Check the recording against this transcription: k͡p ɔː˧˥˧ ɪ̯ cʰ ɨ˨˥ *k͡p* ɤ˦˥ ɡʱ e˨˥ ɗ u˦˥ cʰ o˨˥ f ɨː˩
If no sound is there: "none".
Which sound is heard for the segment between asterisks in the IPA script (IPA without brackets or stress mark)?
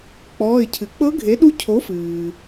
k͡p